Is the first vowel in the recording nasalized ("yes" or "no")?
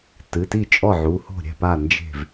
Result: no